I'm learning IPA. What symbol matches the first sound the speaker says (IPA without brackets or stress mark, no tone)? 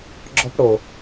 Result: ɡ͡ǁ